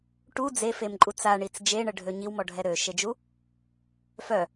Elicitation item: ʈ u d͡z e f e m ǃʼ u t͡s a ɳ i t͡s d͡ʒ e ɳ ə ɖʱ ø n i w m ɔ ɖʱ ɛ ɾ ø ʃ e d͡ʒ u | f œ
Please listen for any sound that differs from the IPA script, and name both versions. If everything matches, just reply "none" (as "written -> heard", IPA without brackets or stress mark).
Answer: n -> ɲ